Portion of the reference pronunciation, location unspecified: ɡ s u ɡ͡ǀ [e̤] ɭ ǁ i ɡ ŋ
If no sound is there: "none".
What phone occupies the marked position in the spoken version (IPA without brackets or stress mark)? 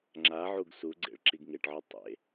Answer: ḛ